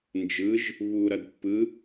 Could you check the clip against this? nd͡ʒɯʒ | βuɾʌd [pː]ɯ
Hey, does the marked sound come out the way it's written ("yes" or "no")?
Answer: yes